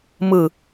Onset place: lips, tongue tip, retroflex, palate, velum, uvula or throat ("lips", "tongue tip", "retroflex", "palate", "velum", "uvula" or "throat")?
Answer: lips